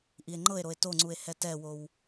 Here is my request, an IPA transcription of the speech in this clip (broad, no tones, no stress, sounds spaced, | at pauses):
ʔ i e̯ ŋ͡ǃ ɤ e̯ ɾ o e̯ t o ŋ͡ǀ u e̯ h ɛ t ɛ w o w